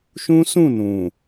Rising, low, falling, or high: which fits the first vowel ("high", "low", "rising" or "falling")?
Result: high